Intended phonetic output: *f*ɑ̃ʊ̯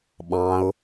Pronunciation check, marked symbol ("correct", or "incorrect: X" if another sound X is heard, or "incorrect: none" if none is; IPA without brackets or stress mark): incorrect: ɓ